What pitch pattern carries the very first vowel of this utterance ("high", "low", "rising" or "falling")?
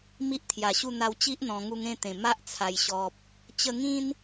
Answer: high